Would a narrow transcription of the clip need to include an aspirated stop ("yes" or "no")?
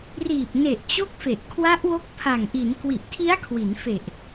yes